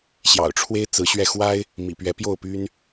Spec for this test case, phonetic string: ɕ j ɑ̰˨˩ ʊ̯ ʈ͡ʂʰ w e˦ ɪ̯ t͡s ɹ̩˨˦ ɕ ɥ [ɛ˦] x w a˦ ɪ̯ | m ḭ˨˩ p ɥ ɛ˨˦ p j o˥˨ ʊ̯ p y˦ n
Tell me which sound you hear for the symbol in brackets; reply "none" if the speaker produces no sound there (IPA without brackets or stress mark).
ɛ˧